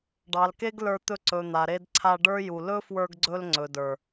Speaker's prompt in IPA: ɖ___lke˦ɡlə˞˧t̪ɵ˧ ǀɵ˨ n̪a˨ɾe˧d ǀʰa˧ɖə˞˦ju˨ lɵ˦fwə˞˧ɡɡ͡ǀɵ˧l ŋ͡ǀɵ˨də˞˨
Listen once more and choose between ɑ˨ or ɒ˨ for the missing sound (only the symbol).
ɑ˨